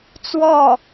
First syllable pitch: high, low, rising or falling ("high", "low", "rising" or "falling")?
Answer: falling